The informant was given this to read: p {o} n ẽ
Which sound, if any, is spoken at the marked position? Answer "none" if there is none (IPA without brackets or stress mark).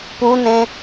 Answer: u